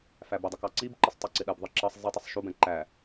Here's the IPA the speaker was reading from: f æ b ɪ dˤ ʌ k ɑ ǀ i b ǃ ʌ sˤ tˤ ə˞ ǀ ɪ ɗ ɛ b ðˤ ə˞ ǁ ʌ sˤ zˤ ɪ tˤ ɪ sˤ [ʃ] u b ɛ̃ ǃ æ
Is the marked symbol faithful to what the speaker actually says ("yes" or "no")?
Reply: yes